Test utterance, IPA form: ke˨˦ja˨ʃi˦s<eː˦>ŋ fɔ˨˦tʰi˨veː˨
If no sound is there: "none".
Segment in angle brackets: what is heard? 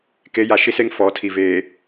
e˦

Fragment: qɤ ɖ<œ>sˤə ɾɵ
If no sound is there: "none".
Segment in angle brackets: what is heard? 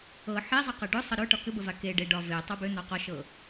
ɵ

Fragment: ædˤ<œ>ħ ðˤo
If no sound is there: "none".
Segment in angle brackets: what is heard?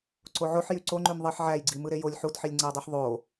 ø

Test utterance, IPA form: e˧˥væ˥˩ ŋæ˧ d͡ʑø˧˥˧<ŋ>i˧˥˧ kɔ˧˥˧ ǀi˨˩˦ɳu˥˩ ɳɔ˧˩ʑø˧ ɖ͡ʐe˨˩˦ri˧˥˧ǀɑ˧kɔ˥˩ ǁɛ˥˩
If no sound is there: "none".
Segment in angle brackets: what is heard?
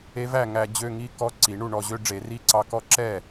ŋ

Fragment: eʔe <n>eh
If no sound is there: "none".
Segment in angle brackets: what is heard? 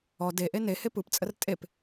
n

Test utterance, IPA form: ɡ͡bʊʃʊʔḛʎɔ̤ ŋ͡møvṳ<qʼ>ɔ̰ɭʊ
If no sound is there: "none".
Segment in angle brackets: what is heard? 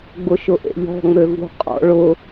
qʼ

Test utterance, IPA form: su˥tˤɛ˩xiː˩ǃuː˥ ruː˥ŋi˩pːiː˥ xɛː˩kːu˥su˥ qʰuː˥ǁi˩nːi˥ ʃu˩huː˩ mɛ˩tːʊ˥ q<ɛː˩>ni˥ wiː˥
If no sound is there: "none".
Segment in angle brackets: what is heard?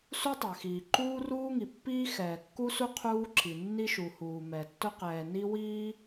ɛː˩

